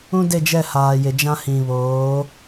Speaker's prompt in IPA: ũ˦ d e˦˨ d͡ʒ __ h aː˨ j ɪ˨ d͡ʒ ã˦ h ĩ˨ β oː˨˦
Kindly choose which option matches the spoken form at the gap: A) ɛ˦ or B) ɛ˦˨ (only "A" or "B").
B